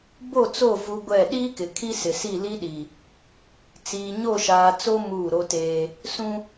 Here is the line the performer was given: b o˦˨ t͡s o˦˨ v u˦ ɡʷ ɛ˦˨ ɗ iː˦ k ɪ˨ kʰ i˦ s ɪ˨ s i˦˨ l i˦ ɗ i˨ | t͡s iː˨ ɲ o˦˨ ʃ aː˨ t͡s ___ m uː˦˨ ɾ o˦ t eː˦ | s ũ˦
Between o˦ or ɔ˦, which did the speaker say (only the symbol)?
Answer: o˦